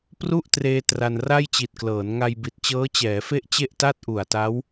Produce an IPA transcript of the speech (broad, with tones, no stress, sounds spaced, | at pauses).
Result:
p r u˥˩ ʔ t r eː˧ t r a˧ n r a˥˩ j t͡ɕ i˨˩ t̚ k l ɤː˩˦ n ŋ a˧ j b i˨˩ t̚ t͡ɕ ɤː˦˥ t͡ɕ ɛː˩˦ f e˥˩ ʔ t͡ɕ e˥˩ ʔ t a˥˩ t̚ ʔ u˨˩ a̯ t a˦˥ w